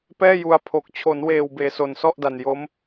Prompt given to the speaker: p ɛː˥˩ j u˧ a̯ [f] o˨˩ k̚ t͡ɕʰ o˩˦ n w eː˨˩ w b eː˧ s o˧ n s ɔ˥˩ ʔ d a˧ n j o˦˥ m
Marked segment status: incorrect: pʰ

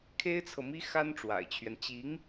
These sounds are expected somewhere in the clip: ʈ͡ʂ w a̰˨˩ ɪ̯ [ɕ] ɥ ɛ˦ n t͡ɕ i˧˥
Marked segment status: incorrect: t͡ɕʰ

